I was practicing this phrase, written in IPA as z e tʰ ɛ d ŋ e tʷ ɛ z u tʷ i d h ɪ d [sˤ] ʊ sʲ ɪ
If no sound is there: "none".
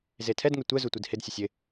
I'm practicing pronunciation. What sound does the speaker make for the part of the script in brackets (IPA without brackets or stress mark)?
sʲ